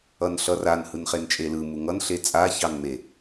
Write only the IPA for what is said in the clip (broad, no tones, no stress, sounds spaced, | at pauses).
ʌ n ɬ ʌ r a n h ɯ n χ e n t͡ʃʼ e l ɯ m u ŋ ʌ n ɬ e t͡sʼ a ç ɑ n m e